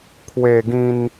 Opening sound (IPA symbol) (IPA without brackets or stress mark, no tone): kʰ